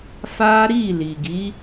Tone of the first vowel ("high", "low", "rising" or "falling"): high